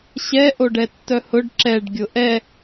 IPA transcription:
ɕ ɛ ʔ o ɖ ɛ tː œ h ʊ ɖ ǁ ɛ ɖ ɡʲ ʊ ʔ ɛ

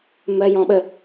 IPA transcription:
m ɜ j ɔ̃ ɓ ə

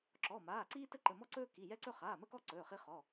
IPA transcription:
ǁ ɔ˩˧˩ m aː˩˧˩ ǀ iː˦ t ə˦ ǃ ə˩˧˩ m ɔ˦ ǀ ɵː˦ k i˩˧˩ j ɛ˦ ǀ ɵ˦ χ aː˩˧˩ m ə˦ k ɔ˦ ǀ ɵː˩˧˩ χ i˦ χ ɔ˩˧˩

